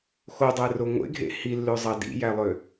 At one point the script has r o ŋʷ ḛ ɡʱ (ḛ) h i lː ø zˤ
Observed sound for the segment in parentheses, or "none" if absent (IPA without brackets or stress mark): ḛ